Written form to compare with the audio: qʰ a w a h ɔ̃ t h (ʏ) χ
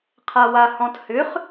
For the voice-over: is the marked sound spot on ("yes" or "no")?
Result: yes